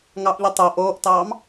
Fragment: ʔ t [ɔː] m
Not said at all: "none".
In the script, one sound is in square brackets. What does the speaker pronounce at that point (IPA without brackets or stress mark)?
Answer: ɑː